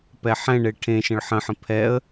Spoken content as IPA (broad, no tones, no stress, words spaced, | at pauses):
pɛħɛ̃ɳe ʈʰẽʃə̃ɭ ħə̃ħə̃ pʰɛə̯